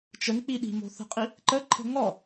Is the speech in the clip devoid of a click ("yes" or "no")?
no